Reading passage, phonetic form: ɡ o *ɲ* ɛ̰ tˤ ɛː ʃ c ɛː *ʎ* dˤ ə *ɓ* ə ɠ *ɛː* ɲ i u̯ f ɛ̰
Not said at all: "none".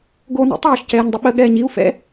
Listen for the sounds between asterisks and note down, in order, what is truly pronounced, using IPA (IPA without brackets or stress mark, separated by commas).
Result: n, ɲ, ɓ, ɛː